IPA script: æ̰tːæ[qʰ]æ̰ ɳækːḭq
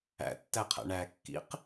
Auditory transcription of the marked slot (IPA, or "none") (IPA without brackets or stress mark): qʰ